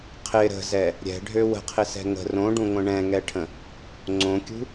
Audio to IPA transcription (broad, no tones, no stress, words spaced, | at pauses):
qʰɪ ɾə̤zɛ | ɾʲɛ̤ɖʱø wə̤qʰɪsɛ̤ ŋə̤ rõɖũŋʷə̃ ɳɛ̃ŋɛʈʰə̃ | ŋ͡ǀõkʲṳ